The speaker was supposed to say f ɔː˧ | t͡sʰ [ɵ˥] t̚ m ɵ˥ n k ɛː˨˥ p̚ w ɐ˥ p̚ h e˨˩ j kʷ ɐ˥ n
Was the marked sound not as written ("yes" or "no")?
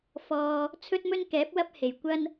no